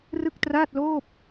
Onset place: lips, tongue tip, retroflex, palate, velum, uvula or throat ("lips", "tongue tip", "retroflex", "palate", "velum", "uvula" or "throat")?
tongue tip